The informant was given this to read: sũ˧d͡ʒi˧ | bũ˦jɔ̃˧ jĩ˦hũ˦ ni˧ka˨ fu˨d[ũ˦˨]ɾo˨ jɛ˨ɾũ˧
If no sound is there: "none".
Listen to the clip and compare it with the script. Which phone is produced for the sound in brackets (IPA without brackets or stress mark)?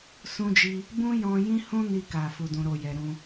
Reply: ũ˨